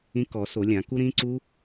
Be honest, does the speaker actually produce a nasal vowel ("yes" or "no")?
yes